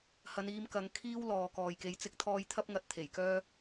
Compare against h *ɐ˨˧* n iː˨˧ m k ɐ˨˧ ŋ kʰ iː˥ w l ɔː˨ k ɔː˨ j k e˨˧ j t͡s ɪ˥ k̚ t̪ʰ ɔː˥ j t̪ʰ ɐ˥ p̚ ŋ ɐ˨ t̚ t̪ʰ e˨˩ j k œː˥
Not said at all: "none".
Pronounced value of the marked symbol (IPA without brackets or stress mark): ɐ˨˧